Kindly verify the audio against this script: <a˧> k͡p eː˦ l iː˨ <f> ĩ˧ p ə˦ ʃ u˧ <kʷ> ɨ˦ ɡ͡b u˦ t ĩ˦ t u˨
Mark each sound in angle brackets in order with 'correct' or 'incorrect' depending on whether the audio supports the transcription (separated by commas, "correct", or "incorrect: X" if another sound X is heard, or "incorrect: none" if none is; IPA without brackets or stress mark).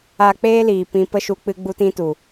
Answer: correct, incorrect: p, incorrect: k͡p